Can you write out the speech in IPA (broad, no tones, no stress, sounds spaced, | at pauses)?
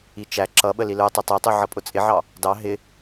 i t͡ʃ æ ǁ ʌ ɓ ə l i l ə˞ tˤ i tˤ ə˞ tˤ u ʕ ʌ pʼ ʊ t͡sʼ ɪ ʕ ɑ | d ɑ ɦ ɪ